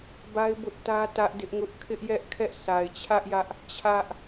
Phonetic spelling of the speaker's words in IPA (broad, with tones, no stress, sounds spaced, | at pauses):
b a˦ ɪ̯ b ʊ˦ ʔ t ä˦ t ä˦ ʔ d ɪ˦ ʔ ŋ ʊ˦ ʔ kʰ ɪ˦ ʔ j ɛ˦ ʔ kʰ ɛ˦ ʔ s a˨ ɪ̯ t͡ɕʰ ä˦ ʔ j ä˦ ʔ | t͡ɕʰ ä˦ ʔ